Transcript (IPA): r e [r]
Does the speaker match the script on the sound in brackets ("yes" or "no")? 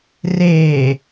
no